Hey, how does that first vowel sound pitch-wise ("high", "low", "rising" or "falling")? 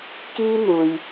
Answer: high